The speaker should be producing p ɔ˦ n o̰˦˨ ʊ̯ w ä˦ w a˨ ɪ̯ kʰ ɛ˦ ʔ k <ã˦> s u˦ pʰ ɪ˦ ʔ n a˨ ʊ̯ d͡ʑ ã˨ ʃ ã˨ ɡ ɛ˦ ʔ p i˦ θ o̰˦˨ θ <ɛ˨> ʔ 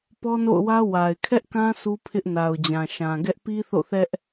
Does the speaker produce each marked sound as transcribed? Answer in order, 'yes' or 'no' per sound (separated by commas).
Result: yes, no